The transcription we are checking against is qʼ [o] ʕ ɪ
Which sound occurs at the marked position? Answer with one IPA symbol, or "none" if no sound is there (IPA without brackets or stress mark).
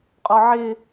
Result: ɔ